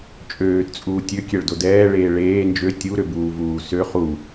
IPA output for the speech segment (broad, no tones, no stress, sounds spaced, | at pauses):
t͡ʃʼ øː t t͡sʼ uː tʲ ø kʲ ɛ ɭ d o d ɛː ɭ eː ɭ eː n d͡ʒ ø tʲ u ɾ ø b uː v uː s ø χ u